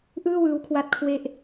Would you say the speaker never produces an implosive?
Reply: yes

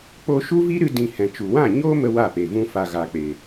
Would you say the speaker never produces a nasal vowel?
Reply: no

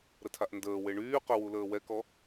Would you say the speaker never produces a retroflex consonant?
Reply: no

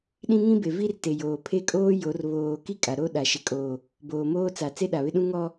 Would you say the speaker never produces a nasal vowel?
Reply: no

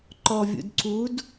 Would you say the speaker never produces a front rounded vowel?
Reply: yes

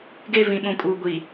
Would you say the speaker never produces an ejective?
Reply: no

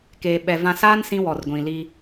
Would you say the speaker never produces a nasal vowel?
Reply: no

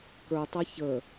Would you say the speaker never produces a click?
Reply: yes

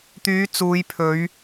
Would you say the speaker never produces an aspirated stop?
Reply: no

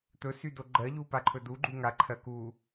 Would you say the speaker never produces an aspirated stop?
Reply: no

